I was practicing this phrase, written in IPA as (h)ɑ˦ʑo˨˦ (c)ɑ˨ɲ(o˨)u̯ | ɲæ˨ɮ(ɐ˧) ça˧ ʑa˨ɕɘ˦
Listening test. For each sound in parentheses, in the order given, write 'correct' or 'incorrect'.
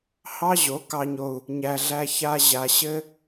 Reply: correct, incorrect, correct, incorrect

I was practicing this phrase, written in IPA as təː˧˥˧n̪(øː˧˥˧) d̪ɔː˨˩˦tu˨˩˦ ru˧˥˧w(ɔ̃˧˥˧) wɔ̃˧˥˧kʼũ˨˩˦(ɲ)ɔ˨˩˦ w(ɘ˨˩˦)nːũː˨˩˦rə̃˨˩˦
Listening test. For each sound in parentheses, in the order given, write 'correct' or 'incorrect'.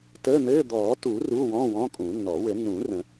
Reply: incorrect, correct, incorrect, correct

